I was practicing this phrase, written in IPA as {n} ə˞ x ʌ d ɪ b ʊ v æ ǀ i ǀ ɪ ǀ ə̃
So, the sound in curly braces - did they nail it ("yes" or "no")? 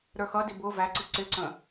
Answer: no